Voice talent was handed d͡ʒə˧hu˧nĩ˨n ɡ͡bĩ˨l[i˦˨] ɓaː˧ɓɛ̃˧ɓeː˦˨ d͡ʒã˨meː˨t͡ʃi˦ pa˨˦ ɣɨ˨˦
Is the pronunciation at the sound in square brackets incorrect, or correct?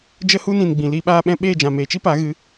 incorrect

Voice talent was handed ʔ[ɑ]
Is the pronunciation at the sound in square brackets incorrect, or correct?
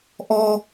incorrect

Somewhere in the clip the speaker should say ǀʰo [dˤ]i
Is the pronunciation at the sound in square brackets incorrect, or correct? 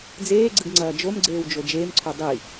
correct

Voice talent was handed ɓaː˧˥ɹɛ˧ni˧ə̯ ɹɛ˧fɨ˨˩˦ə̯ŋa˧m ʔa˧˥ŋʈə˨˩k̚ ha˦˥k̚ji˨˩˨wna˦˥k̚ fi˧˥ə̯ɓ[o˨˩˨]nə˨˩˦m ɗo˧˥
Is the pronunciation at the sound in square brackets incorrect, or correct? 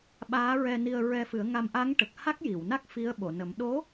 correct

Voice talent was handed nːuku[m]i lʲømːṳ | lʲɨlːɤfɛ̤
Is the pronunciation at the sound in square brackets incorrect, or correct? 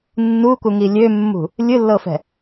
incorrect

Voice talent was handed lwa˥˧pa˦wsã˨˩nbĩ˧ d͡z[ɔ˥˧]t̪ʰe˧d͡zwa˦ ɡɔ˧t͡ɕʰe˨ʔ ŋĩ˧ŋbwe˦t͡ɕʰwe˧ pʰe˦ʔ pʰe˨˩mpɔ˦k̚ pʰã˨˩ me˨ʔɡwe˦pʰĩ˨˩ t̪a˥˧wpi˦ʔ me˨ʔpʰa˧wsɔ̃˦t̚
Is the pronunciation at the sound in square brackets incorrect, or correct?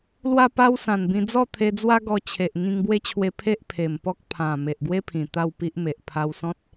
correct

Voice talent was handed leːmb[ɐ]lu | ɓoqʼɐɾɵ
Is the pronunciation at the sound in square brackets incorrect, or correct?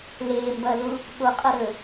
correct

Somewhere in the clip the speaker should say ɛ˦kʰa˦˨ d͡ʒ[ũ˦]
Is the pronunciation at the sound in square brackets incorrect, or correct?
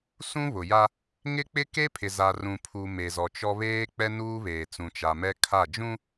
correct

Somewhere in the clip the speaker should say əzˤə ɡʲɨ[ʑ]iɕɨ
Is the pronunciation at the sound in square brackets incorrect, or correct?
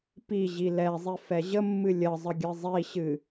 incorrect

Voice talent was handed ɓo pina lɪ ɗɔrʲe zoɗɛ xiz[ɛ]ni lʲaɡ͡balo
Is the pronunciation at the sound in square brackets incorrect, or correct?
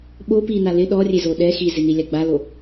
incorrect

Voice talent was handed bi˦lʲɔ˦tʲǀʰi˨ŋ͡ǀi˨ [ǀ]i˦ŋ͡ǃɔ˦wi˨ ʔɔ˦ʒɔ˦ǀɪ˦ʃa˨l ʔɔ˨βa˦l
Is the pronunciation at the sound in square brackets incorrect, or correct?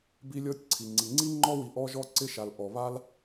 incorrect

